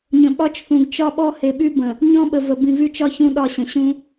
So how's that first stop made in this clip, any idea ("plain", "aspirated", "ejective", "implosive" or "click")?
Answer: implosive